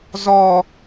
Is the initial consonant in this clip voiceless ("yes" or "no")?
no